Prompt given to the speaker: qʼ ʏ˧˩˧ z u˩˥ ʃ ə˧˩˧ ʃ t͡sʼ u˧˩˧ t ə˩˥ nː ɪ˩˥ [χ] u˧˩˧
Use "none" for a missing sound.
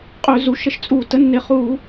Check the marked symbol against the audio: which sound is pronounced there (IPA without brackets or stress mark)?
χ